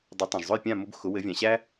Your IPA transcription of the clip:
dˤ ɘ˩˥ tˤ ã˩ ʒ zˤ ʊ˥˩ j pʲ ã˥˩ m ʊ˧ b x ʊ˩˥ w ɘ˩˥ vʲ ã˩ ɕ æ˥

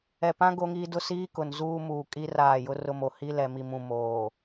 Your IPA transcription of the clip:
ɛ˨ p ã˦ ɡ o˦ ŋ iː˦ d ʊ˦ s iː˦ k ʊ˨ n z uː˦ m uː˨ kʼ i˦ r aː˦˨ j ʊ˦ r ʊ˦ m o˨ h i˦ l ɛ˨ m i˨ m ũ˨ m oː˨

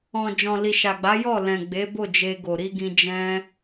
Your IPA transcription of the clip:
ɔ̃˨ d͡ʒ ɔ̃˨ l i˨ ʃ a˨ ɡ͡b a˨˦ j ɔ˦˨ l ɛ̃˨ ɡ͡b e˨˦ b o˦˨ d͡ʒ e˧ ɡ o˨ ɾ i˧ ɡ ĩ˧ d͡ʒ ɛ̃˦

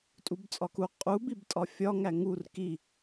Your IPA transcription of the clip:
tʼ u b t͡sʼ ɒ k u qʼ u b i b tʼ ɒ fʲ ɒ ŋ æ ŋ u r k i

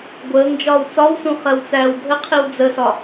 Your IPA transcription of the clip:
ɡʷ əː ŋ d͡ʒ ɒː w t͡s ɒ w s ũ χ ɜ w t͡s æː w bʱ ə qʰ i w d͡z ə s ɒ

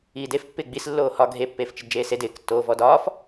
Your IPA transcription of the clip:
iː d e f pː ɪː ɡ͡b i s lː oː h ɒ ɡʱ e pː eː f t͡ʃ ɪ d d͡ʒ eː s e d ɪː k tː oː v ɔ d ɒː f

